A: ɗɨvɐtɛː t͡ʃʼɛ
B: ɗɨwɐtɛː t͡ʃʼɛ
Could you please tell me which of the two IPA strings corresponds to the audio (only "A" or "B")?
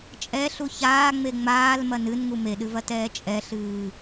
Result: A